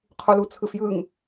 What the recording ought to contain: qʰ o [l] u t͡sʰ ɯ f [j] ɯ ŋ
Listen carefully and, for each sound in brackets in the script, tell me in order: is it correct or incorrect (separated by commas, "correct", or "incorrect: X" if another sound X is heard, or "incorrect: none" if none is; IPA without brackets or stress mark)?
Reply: correct, correct